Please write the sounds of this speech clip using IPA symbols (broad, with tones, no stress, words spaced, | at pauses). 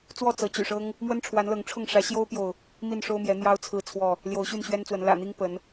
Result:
t͡swɔ˥˨t͡sɤ˨˦t͡ɕy̰˨˩ʂɤ˦ŋ | mwə˦nʈ͡ʂʰwa˨˦nlɤ˨˦ŋʈ͡ʂʰʊ˥˨ŋ ʂä˨˦ɕjo˦ʊ̯pjo˨ʊ̯ | mi˥˨nʂo˦ʊ̯mjɛ˨˦ n̪jɑ˦ʊ̯t͡sʰɹ̩˥˨ t͡sʰwɔ˥˨ | ljo˨˦ʊ̯ɕy˥˨nɕɥɛ˦nt͡swə˨˦n lä̰˨˩n̪i˦ŋ pə˨˦n